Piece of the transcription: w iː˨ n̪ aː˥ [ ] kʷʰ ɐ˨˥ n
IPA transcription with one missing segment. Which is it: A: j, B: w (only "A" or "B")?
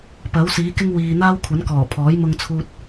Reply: B